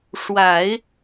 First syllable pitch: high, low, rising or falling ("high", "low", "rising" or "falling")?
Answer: low